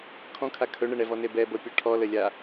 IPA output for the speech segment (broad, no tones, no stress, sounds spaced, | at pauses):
kʰ ɔ̃ kʰ a kʰ ɵ ɳ ə ɳ ɛ v ɔ n e b ɛ b ɤ pʲ ɔ ʈʰ ɔ l ə lʲ a